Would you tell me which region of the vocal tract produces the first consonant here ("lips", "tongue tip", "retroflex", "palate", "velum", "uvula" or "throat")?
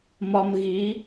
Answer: lips